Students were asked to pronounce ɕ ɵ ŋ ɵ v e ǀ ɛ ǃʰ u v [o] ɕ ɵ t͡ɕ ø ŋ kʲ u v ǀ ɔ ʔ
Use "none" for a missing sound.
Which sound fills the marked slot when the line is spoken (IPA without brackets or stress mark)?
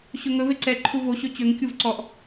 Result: o